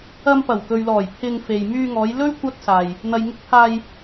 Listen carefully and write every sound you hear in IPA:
ɐ˧ m p ɐ˨˩ w k ɵ˨ ɥ l ɔː˨˩ j pʰ ɪ˧ ŋ f e˨ j m yː˧ ŋ ɔː˨˧ j l ɵ˥ ɥ kʷ ɐ˥ t̚ s aː˨ j | n̪ ɐ˨ j ŋ ɪ˧ k̚ pʰ aː˧ j

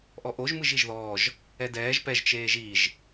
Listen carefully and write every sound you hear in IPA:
ʔ ɔ ʔ o ʒ m ɯ ʒ i ʒ ð ɔː ʒ | ɛ d ɛː ʒ p ɛ ʒ t͡ʃ eː ʒ i ʒ

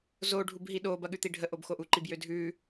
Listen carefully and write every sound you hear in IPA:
z o ɖʱ u b ɦ i ɗ o b ɐ ɠ ʉ t̪ i ɖʱ ə ʔ o b x o ʔ u ǃ i b j ø dʱ ʉ

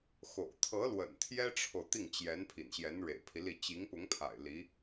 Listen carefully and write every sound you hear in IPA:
x o̰˨˩ ʊ̯ t̪ʰ ɤ˧˥ l w ə̰˨˩ n t̪ʰ j ɛ˥ ʈ͡ʂʰ o˨ ʊ̯ t̪ i˥˩ ŋ t͡ɕ j ɛ˧˥ n pʰ ḭ˨˩ n ɕ j ɛ˧˥ n ɻ ḛ˨˩ ɪ̯ pʰ i˦ l i˥˩ t͡ɕ i˧˥ ŋ p ʊ˧˥ ŋ pʰ a̰˨˩ ɪ̯ l i˧˥

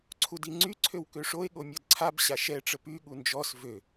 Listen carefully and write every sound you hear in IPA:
ǀʰ u d i ŋ͡ǀ y ǀʰ ø w k ø ʂ o e̯ ɠ o mʲ ɔ d ǀʰ a b ɕ a ʃ ɛ ʈ͡ʂ ə p y ɠ u n d͡ʒ ɔ s v ø

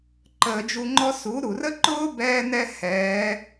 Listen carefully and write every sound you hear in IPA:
ǃ əː˧˩˧ d͡ʒ u˧ ŋ͡ǃ ɔ˥ s u˩˥ ɾ u˩ r ə˥ ǃ ʊː˥ b ɛː˥ n ɛ˥ h ɛː˩˥

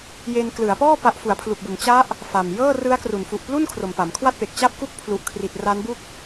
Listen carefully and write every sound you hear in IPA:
j e˧ n k l ɯ˩˦ a̯ p ɔː˥˩ p a˦˥ ʔ f u˩˦ a̯ pʰ l u˨˩ k̚ b u˩˦ n t͡ɕ a˦˥ ʔ | f a˨˩ m j ɤː˥˩ r ɯ˦˥ a̯ k r u˩˦ n f u˨˩ ʔ p l u˥˩ n kʰ r o˨˩ m p a˩˦ m kʰ w a˥˩ t̚ p e˨˩ k̚ t͡ɕ a˥˩ p̚ k u˥˩ k̚ pʰ l u˨˩ ʔ kʰ r i˨˩ t̚ r a˦˥ n b u˥˩ k̚

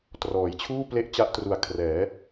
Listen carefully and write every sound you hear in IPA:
t r ɔː˩˦ j t͡ɕʰ uː˥˩ p l e˦˥ ʔ t͡ɕ a˦˥ ʔ t r u˨˩ a̯ kʰ r ɛː˩˦

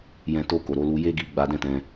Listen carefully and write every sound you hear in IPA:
j ɛ̃˧ t o˧ k o˨ ɾ o˨˦ l u˧ j e˦ ɡ i˧ ɡ͡b a˧ d ɛ̃˦ t ɛ̃˧

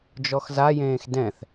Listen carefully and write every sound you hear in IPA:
d͡ʒ ɔ x z a j ẽː x d ɛ̃ θ

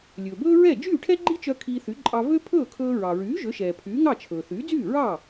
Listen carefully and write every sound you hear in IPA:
lʲ ɵː˩ b ɵː˥ ɹ ɛ˥˩ d͡ʒ yː˥˩ ʈʰ ɛ˥ ɡ͡ǃ i˥ t͡ʃ œ˧ kʰ iː˧ θ y˩˥ ǃʼ ɑ˧ v ø˥ pʰ ɵː˥˩ kʰ ɵː˧ ɹ ɑ˩ ɹ yː˩˥ ʒ ø˩˥ ʃ ɛː˩ pʰ yː˩˥ ŋ ɑ˥˩ t͡ʃʰ ɵː˩ θ yː˩˥ d͡z yː˥˩ ɹ ɑː˥˩

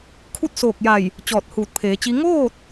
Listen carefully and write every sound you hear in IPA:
kʰ u˥˨ t̚ s oː˧˩ k̚ j a˧˩ j | t͡ɕ ɔː˧˩ t̚ h uː˧˩ t̚ pʰ eː˩˧ t͡ɕ i˧˥ ŋ oː˥˨ t̚

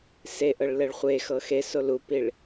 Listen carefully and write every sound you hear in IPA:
s e ʔ ɤ ɭ l ɛ ɭ χʷ e x ɤ x e s o l u p i ɭ

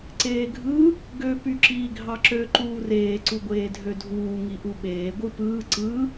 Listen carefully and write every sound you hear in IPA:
ǀ eː ɡʱ ɯ | ɡ ø p y ǁ iː ɡʱ ɑ ǁ ø ǃ uː r eː ǀ u ɡʷ eː dʱ ø dʱ uː ŋ i ʔ u ɓ eː ɡʷ ɯ p ɯː ǀ ɯ

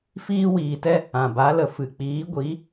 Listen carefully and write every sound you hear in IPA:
f iː˧ w iː˨ t ɛ˧ | ã˨ b a˨˦ l ə˨ f ɨ˨ k͡p iː˨˦ ɡʷ i˨˦

